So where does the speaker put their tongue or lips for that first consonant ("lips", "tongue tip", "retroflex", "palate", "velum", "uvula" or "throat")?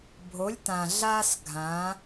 lips